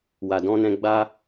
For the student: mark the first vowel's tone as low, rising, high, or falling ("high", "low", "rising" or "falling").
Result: low